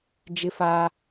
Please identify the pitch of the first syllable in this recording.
high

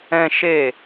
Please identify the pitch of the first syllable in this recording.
high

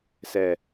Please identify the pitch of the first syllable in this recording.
low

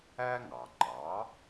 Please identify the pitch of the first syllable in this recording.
high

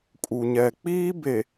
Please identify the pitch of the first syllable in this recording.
low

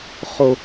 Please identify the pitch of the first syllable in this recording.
high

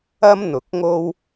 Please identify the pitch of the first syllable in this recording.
high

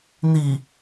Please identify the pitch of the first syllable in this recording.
low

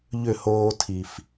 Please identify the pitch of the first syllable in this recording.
falling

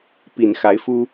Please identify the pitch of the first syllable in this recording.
low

